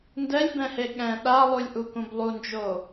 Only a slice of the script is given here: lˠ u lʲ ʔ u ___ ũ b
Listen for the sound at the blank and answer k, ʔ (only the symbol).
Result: k